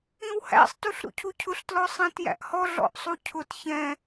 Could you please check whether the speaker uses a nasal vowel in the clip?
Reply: yes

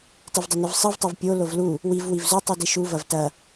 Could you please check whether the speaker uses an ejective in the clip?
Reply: no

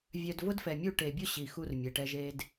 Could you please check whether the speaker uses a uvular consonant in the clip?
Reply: no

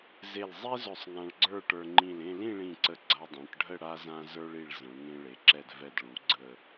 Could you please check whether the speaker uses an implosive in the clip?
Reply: no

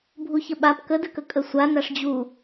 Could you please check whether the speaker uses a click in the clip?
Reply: no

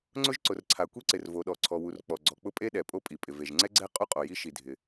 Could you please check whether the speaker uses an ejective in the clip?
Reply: yes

